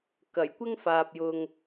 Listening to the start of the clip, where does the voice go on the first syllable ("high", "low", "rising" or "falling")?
low